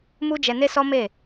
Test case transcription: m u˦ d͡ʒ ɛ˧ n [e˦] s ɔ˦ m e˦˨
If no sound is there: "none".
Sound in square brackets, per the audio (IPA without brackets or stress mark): e˦